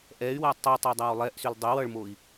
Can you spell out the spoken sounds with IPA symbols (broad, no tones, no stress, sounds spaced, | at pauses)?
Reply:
ʔ ɛ y̯ w æ tˤ o tˤ e dˤ æ w lˠ ɛ ʔ s y l dˤ e w ʌ ɭ m o i̯